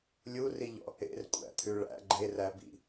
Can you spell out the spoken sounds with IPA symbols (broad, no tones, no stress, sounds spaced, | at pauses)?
lʲ u r i ʎ ɔ̰ | ḛ r kʷʼ æ̰ t̪ʰ ʉ ɭ æ̰ ɡ͡ǃ e r æ b ḭ